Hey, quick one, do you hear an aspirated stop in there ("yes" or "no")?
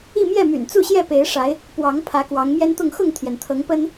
yes